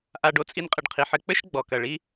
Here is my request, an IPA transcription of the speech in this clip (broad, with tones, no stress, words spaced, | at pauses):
ʔa˨ɖo˨ t͡sʼi˧nqʼɨ˨ɖqʰi˨ħɘ˧ k͡pɘ˦ʃ ɡ͡bɔ˨kɐ˨ ɭi˧